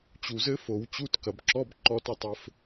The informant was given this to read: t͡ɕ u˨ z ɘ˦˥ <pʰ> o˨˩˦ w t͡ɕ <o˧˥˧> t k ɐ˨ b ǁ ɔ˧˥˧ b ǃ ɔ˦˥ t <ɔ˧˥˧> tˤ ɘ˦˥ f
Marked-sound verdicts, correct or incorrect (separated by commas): incorrect, incorrect, correct